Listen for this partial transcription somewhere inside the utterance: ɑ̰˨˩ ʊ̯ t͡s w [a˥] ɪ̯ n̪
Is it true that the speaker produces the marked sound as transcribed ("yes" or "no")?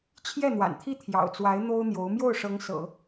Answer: no